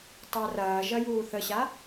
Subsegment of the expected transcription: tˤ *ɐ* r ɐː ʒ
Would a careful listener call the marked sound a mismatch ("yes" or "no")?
yes